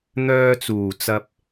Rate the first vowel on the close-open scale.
mid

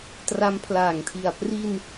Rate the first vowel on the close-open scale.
open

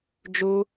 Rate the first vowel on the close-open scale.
close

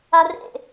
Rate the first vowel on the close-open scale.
open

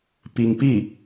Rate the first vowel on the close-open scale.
close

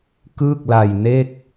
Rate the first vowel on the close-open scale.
close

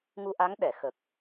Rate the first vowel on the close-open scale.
close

